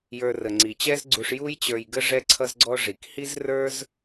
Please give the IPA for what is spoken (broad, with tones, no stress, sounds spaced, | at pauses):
j ə˞˨ r ə˩ ŋ͡ǀ i˩ t͡ɕ ɛ˦ z ɡ͡ǀ u˨ ʂ j u˦ j t͡ɕ ə˞˨ j ɡ ə˦ ʐ ɛ˦ ǀʰ ʌ˦ z ɡ͡ǀ ɔ˦ ʐ i˩ k h i˥ z r ə˞˥ z